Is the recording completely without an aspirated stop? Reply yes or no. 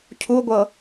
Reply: no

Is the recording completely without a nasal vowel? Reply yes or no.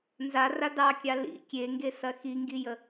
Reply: yes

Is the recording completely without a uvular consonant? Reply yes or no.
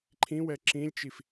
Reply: yes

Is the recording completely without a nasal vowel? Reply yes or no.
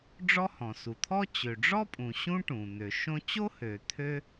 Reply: no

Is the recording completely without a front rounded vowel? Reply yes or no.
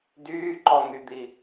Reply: no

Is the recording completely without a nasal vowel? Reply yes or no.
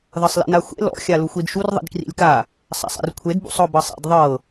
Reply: yes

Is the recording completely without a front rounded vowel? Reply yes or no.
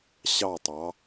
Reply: yes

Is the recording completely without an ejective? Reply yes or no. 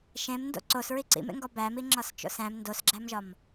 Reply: yes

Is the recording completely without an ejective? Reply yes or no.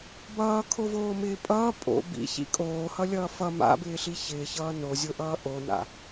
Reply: no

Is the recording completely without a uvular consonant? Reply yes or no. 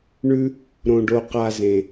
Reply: no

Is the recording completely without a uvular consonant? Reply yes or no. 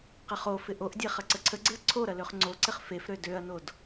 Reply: no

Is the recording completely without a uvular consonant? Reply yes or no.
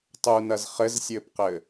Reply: no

